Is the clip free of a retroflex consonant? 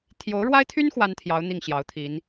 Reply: no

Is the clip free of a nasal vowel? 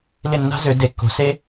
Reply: yes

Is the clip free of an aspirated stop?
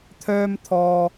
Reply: no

